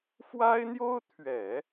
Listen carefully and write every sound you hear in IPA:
f w a˥ ɪ̯ n̪ j o˥ ʊ̯ t̪ʰ ɥ ɛ˨˩˦

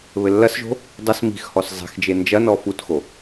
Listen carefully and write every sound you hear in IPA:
β ɘ lː ɐ s ʒ o̤ | dˤ ɘ s m i̤ x h ɔ s zˤ i̤ x d͡ʒ e n d͡ʒ ɐ n ɔ f u t x o

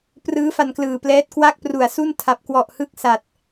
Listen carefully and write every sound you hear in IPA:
p r ɯː˦˥ f a˧ n k l ɯː˨˩ p l ɛː˦˥ t̚ k w a˥˩ k̚ p r u˨˩ a̯ s u˥˩ n tʰ a˨˩ p̚ k w ɔ˨˩ ʔ h ɯ˥˩ k̚ s a˨˩ t̚

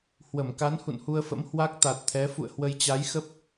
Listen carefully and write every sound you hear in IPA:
h w ə˧˩ m k a˨˦ n h ṵ˧˨ n h u˧ ə̯ f ə̰˧˥ m h w a˦˥ k̚ t̪ a˨˩ t̚ t̪ʰ ɛ˨˦ f ṵ˧˨ ə̯ h w ə˧ j t͡ɕ a˨˦ j x ə˦˥ p̚

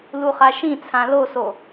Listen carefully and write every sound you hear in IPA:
l u χ a ʃ ĩ t͡sʰ ã l o s o

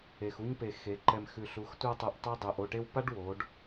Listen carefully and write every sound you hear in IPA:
e˨ x u˦ ɲ p e˨ x e˨˦ ǃ ɛ˧ m x ʉ˨ ɬ u˨˦ x tʷ a˧ tˤ ɛ˨ ʔ tˤ e˦ dˤ ɛ˨ ʔ o˦˨ ʈ e˦ w p a˦ ɖ w o˨˦ ɖ

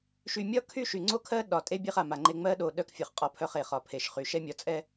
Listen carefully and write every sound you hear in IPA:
ʃ y˨ mʲ ɒ˦ kʰ y˦ ʃ y˨ ŋ͡ǀ o˦ kʰ ɜ˦ ɗ ɒ˨ tʼ e˦ bʲ e˦ χ a˨ m a˨ ŋ͡ǃ e˦ ŋ͡m ɜ˦ ɗ o˨ ɗ œ˦ k fʲ ɒ˨ χ qʼ ɒ˦ pʰ œ˦ χ e˨ χ ɒ˨ pʰ e˨ ʃ χ y˨ ʃ ɛ˦ mʲ ɒ˨ t͡sʼ ɛ˦

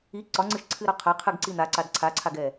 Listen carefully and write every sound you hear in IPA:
i ǀ ɒ ŋ͡ǀ ɨ ʃ ǀʰ ɨ ɾ ɒ qʰ a qʰ ɨ ɡ ǀ i n̪ a ǀ a d ǀʰ a ǀʰ a ɡ ɛ

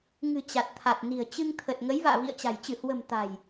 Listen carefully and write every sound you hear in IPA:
ŋ ɨ̤˨˩ t͡ɕ a˨˩ t̚ t̪ʰ a˨˩ t̚ n i̤˨˩ ə̯ t͡ɕ ɨ˧ ŋ t̪ʰ ə˨˩ t̚ ŋ ə˨˦ j v a̰ː˧˨ v ḭ˧˨ ə̯ t͡ɕ a̤˨˩ j t͡ɕ ɨ˧˩ h w ə̤˨˩ m t̪ a̤˨˩ j

